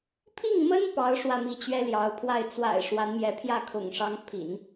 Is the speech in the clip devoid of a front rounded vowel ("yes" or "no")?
yes